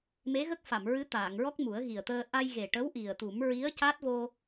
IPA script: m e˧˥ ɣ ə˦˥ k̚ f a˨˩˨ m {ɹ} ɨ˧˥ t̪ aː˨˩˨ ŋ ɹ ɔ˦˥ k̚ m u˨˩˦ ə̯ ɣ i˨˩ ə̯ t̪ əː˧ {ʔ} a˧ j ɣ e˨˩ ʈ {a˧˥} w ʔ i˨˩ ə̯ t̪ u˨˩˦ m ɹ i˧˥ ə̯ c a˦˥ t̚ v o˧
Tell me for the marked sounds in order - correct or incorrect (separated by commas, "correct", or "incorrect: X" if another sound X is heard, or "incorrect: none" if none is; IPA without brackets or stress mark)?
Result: correct, correct, incorrect: ə˧˥